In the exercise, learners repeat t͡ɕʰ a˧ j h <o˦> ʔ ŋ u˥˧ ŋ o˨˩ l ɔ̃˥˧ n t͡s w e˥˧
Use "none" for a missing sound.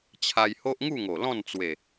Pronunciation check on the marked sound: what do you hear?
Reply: o˦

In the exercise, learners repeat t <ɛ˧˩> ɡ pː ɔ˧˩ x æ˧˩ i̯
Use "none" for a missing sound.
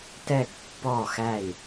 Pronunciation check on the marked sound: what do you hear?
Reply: ɛ˧˩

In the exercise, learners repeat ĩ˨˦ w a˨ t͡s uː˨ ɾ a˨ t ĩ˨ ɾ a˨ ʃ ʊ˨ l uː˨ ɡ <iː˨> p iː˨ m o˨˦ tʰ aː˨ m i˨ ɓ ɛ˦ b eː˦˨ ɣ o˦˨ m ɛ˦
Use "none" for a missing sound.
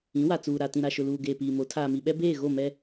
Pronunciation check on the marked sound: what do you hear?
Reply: eː˨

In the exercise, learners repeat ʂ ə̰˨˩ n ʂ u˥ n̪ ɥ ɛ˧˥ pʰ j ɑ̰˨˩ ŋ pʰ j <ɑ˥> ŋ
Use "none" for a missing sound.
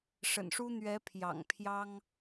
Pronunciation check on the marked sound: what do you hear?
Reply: ɑ˥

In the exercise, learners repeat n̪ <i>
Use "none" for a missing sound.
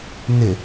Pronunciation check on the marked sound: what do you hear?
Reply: ɪ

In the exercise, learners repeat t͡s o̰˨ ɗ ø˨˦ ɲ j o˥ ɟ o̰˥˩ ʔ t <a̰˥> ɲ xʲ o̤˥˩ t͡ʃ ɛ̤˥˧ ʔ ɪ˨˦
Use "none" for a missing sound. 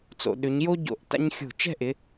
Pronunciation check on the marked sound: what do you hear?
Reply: a̰˥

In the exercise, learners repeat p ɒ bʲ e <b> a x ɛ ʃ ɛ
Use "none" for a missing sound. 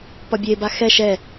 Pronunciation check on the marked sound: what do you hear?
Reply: b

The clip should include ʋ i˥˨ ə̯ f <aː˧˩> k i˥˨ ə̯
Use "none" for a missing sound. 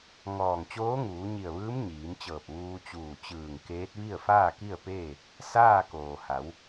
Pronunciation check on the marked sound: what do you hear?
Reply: aː˥˨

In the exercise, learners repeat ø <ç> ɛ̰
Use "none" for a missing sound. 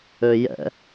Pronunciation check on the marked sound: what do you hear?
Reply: j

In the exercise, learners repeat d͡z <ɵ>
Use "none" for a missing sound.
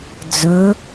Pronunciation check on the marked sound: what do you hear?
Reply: ɵ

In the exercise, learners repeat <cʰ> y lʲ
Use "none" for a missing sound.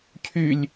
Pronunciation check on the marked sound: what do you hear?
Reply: cʰ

